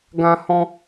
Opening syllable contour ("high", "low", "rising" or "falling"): high